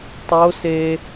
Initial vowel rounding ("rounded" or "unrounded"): rounded